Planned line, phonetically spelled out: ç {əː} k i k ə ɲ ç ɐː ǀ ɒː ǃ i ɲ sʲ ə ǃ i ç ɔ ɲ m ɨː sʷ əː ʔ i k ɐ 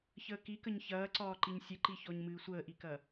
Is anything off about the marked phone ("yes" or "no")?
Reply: no